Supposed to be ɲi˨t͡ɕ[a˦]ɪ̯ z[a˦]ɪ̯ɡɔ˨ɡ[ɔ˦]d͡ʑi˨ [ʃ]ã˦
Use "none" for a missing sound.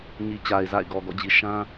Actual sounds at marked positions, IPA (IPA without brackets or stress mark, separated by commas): a˨, a̰˦˨, ɔ̰˦˨, ʃ